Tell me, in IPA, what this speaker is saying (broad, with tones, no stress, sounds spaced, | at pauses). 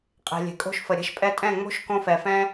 qʼ e̤˨ lʲ e̤˨ kʼ o̤˦ ʃ f ə˨ ɾʲ ɛ̤˧ ʃ pʼ ɛ˧ tʼ ɛ̃˦˨ ŋ͡m o̤˦ ʃ k õ˧ f ɛ˨ f ɛ̃˦